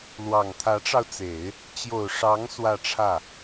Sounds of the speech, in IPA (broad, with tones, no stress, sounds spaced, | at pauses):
l w ɑ˨˩ ŋ t̪ʰ ä˧˥ ʈ͡ʂ ɑ˧ ʊ̯ t͡s e˨˩˦ ɪ̯ | t͡ɕ j o˨˩ ʊ̯ ʂ ɑ˧˥ ŋ s w ä˥˧ ʈ͡ʂʰ ä˥˩